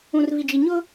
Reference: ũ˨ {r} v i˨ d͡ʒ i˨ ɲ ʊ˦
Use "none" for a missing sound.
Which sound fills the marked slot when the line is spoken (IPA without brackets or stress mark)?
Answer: r